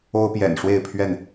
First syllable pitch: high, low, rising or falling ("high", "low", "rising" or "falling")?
high